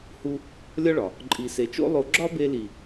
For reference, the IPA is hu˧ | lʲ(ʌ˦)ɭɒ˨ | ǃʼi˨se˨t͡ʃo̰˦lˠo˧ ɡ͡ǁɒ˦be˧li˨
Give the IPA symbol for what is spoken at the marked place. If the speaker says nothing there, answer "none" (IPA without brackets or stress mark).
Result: ɒ˦